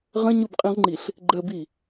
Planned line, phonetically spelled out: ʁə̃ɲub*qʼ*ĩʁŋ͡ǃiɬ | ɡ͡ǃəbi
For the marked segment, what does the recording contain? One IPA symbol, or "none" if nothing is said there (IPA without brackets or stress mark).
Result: qʼ